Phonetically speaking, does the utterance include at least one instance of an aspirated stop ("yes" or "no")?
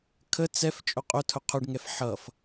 yes